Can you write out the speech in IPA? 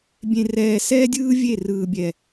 bʲ ẽ˨ r ɛː˨ s ɛː˦ dʲ ɯː˦ vʲ e˦˨ r ɯː˨ bʲ ɛ˨

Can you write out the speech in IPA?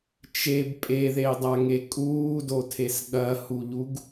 t͡ʃ e b pʼ e ð e i̯ dˤ a ŋ e kʼ uː d o tʰ e s ɠ ɐ h u ʎ u ɡ

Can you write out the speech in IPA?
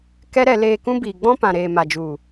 k ɛ˦ ɾ ɛ˧ l eː˧ k ũ˦ b iː˨ ɡ͡b ɔ̃˦ p ã˨ ɾ eː˨ m a˨ d͡ʒ u˨

